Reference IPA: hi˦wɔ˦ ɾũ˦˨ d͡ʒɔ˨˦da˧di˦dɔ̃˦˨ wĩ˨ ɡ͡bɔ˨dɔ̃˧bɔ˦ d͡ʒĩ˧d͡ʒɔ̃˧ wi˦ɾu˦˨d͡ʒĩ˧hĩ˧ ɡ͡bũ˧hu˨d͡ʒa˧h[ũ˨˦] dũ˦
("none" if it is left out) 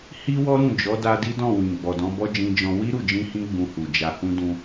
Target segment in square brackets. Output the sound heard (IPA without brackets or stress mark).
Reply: ũ˦